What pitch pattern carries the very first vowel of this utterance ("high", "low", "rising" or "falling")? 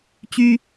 high